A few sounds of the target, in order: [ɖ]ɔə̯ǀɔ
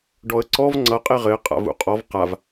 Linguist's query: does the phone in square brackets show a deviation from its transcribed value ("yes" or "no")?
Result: no